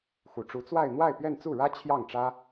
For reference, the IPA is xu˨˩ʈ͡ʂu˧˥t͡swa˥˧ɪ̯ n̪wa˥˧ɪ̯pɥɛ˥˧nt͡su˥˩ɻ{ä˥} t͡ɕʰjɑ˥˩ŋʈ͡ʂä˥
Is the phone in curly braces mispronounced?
no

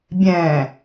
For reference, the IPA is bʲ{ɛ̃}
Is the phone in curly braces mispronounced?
no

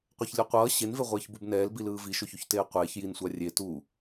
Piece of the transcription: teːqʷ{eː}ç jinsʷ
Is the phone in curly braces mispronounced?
no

